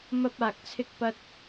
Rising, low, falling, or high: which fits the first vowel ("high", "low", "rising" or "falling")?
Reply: high